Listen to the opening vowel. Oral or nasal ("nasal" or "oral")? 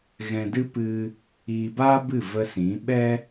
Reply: nasal